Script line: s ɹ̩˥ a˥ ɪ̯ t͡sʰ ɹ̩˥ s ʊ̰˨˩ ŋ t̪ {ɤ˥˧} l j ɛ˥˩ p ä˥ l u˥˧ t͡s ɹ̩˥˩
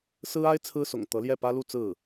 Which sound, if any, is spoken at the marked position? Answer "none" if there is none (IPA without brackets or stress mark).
ɤ˧˥